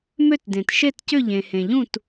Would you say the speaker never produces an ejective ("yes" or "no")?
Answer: yes